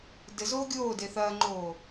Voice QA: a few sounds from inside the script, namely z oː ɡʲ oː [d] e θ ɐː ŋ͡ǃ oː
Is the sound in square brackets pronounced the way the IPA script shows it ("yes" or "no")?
yes